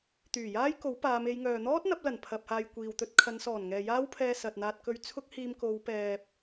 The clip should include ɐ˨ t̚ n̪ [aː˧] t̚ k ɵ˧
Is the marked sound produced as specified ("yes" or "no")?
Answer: yes